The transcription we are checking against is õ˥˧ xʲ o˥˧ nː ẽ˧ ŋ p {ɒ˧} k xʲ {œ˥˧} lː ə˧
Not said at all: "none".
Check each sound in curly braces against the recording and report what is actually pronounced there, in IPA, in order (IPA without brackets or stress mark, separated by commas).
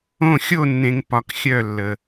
ɒ˧, œ˥˧